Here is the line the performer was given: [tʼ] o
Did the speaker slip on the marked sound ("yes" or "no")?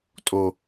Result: no